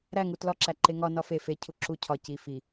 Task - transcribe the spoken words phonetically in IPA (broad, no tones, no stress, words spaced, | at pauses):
ɾæŋu tlɒǁæ ǃeŋɒ nɒfe fe cʰuǁu cʰɒ ci fi